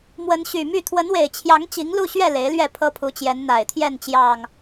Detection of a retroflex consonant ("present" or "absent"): absent